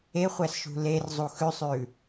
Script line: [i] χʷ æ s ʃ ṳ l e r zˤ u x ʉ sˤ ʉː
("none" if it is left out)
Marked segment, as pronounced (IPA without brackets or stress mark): e